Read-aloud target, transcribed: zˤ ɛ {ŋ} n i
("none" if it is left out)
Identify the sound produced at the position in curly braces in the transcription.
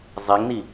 ŋ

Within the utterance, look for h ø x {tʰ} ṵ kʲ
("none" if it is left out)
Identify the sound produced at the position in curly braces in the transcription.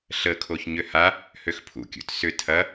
pʰ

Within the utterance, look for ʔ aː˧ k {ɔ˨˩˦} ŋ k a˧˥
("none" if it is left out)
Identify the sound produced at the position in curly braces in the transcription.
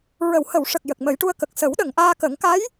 ə˨˩˦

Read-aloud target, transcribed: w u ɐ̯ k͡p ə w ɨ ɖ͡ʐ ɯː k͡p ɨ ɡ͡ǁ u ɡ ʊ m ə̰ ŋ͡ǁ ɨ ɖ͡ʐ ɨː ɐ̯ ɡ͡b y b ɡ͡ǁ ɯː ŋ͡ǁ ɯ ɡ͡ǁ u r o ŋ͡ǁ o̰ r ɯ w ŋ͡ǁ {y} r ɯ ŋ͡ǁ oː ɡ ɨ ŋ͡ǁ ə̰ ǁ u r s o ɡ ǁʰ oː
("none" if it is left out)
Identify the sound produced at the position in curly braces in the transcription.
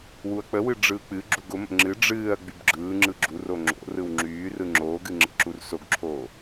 yː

